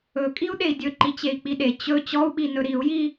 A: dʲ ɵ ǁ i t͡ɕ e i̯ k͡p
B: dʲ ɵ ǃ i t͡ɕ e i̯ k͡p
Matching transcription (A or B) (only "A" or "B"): B